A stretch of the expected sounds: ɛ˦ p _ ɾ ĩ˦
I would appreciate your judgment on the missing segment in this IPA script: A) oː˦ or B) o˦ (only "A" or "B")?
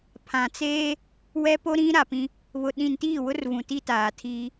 B